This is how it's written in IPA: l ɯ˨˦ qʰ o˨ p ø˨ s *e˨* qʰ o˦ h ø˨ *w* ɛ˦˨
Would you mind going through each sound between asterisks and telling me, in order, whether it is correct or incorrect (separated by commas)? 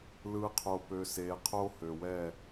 correct, correct